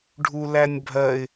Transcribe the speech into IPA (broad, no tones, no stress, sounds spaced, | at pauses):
ɖʱ u l æ nʲ bʱ ɜ ɪ̯